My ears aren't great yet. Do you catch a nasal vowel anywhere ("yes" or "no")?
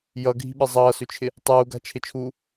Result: no